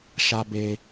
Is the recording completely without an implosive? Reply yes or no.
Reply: yes